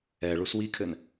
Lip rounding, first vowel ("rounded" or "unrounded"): unrounded